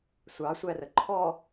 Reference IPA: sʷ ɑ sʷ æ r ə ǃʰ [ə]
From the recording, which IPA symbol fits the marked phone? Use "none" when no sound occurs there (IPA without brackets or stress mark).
ɔ